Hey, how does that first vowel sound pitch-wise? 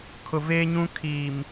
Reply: low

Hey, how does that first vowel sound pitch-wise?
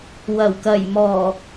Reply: low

